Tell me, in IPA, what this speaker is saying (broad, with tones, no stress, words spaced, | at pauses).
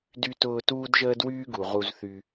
dy˧tʊː˧ tuː˥dʒəː˥dwyː˥ɡu˩ ʁu˧zθy˧